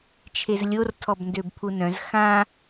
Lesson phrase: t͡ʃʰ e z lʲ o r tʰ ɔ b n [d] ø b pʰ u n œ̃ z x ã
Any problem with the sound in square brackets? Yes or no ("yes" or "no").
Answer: no